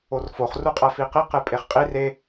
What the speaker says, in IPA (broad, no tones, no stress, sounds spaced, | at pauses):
o r f o χ r u qʼ æ f i q i q e pʼ e χ qʼ i r e